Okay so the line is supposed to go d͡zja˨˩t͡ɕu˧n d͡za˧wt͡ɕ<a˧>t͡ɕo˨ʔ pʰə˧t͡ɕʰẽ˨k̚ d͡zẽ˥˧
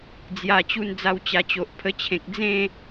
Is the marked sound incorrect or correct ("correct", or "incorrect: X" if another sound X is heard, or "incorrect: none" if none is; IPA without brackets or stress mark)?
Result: incorrect: a˨˩